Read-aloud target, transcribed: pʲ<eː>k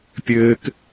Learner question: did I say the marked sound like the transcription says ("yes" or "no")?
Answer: no